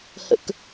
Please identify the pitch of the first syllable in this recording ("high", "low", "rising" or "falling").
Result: low